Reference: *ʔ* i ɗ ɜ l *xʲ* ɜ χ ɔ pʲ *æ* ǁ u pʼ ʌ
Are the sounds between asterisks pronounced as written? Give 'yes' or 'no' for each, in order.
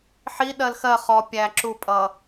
no, no, yes

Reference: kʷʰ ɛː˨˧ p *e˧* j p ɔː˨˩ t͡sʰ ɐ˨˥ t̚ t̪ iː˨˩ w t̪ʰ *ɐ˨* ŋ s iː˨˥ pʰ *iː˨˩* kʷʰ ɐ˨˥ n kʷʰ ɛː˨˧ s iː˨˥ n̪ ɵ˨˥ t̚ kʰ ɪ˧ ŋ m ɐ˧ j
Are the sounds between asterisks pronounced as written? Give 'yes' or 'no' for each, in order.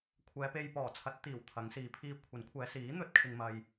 yes, no, no

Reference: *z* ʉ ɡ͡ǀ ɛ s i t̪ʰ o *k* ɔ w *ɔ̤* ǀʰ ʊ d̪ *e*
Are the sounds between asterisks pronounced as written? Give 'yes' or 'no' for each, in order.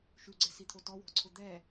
no, no, yes, no

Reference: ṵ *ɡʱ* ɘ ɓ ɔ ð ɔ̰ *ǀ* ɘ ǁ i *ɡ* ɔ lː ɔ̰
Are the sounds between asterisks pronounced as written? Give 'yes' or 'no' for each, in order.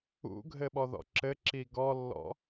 yes, no, yes

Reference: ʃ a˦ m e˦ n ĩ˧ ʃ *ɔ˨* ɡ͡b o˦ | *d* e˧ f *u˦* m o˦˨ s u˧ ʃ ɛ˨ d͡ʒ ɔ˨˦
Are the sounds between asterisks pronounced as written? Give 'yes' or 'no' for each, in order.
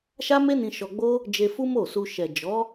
no, no, yes

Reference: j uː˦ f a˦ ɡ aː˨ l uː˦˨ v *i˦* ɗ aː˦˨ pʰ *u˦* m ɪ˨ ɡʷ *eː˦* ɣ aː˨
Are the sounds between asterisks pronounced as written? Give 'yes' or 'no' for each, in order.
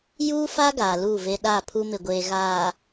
no, yes, no

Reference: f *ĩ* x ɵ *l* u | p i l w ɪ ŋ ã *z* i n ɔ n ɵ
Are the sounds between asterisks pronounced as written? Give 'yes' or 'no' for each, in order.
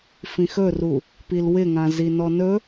yes, no, yes

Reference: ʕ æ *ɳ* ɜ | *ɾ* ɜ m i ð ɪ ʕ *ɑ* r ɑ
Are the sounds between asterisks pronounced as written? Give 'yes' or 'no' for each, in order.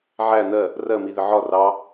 no, no, no

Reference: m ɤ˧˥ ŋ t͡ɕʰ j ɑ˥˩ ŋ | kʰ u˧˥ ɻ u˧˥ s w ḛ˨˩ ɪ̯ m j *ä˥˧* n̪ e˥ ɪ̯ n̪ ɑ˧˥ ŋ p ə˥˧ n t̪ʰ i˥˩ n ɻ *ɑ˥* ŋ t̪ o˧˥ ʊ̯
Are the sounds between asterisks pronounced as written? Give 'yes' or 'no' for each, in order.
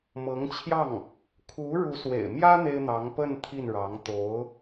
no, no

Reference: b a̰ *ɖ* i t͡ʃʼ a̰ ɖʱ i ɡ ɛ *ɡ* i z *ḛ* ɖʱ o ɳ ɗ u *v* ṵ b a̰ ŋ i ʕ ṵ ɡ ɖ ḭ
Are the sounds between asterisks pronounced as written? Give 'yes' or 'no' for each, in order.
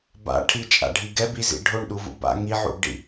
no, no, no, yes

